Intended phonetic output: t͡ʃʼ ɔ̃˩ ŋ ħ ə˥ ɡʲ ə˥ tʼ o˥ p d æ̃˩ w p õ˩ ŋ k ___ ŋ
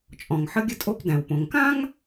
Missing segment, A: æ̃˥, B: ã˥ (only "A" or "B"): B